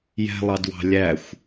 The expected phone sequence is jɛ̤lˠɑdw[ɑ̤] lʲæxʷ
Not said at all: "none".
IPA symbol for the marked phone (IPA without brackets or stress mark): ɑ̤